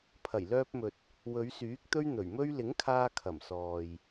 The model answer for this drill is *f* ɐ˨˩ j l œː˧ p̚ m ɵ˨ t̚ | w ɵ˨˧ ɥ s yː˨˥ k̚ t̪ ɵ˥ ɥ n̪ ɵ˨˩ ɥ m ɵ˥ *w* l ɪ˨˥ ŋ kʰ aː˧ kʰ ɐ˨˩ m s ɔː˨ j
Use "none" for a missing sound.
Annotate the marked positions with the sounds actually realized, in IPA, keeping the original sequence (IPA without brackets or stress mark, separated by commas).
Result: pʰ, ɥ